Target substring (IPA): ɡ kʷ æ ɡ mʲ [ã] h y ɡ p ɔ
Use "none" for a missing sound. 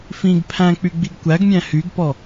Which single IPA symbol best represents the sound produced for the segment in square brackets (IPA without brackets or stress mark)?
æ̃